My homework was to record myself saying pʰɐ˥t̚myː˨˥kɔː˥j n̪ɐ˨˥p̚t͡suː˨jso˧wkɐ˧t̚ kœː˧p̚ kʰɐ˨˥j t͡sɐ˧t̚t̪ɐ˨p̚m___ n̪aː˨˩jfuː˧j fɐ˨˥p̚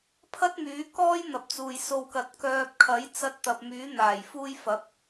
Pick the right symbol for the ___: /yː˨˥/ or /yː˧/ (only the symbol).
yː˨˥